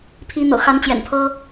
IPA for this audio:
pʰ i˨˦ n̪ ɤ̰˨˩ x a˨˦ n t͡ɕ j ɛ̰˨˩ n pʰ ɤ˦

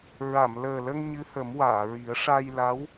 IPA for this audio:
ɹ a˨˩˨ m l əː˨˩ l ə˧ ŋ ɲ ɨ˧˥ h ə˨˩˦ m w aː˨˩˨ ɹ i˨˩˦ ə̯ ʂ a˧ j l a˧˥ w

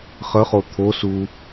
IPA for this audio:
χ ə χ o t̪ʰ o s u

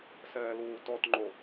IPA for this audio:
s ɛː l uː t ɔ t ŋ͡ǃ o

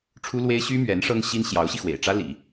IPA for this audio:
ʈ͡ʂʰ u˥ l w e˥ ɪ̯ ɕ y˥ m ɥ ɛ˧˥ n ʂ ɤ˥ ŋ ɕ i˥ n ɕ j ɑ˧˥ ʊ̯ ɕ i˧ x w ḛ˨˩ ɪ̯ ʈ͡ʂ ä˥ l ḭ˨˩˦

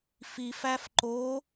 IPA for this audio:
f i f æ f ǃ o

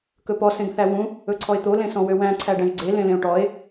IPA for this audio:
k ɵ p ɔ s ẽ ɡ θ æ w ũ | ɵ ǀʰ ɔ e̯ t̪ o l ẽ s ɔ̃ w ø w æ̃ ǀʰ æ ɖ æ̃ ʒ ɡ͡ǀ e l ẽ l ẽ o̯ ʈ ɔ e̯

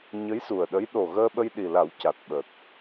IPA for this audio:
ɲ ə˧˥ j s u˨˩ ə̯ ɗ ə˧˥ j ɗ o˨˩ ɣ əː˧ ɓ ə˧ j ɗ i˨˩ l a˨˩˦ w c a˨˩ t̚ ɓ ə˨˩ k̚

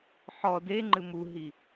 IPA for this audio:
ħ ɔ d e ŋ͡ǃ ɨ m u ɦ i

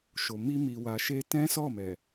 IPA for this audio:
ʃ o˨ m i˧ m i˨ w a˨ ʃ e˧ t ɛ̃˦ s ɔ˦˨ m ɛ˨

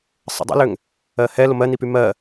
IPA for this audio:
sˤ ə̰ dˤ ə̰ l ʏ ŋ | ɜ h ɛ l o m ɜ n i p y m ɜ

